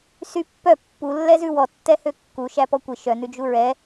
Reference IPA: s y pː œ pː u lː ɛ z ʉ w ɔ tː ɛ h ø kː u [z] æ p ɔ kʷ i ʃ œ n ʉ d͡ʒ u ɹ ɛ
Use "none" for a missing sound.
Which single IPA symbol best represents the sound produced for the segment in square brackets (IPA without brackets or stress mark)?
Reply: ʃ